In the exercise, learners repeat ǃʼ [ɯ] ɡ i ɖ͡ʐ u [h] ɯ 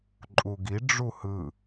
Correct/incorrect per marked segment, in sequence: incorrect: u, correct

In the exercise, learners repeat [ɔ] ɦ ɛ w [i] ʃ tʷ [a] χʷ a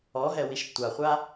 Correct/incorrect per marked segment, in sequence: correct, correct, correct

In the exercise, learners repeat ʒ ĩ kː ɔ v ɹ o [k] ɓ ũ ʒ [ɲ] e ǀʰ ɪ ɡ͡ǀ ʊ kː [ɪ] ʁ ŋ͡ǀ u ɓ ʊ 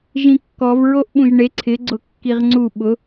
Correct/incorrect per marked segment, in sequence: incorrect: ʔ, incorrect: ɳ, incorrect: i

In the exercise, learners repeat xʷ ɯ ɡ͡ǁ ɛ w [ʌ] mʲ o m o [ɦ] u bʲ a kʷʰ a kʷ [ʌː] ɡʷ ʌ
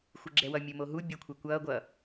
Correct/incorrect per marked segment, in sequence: correct, correct, correct

